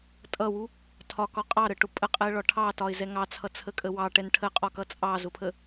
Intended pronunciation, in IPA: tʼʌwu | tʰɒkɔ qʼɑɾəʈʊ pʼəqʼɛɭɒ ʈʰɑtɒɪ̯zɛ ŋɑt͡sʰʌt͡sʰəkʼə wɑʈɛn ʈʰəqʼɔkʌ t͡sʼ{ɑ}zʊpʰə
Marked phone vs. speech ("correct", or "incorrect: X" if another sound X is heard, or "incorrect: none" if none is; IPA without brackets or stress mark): correct